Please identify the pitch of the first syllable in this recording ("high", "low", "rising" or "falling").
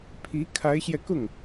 rising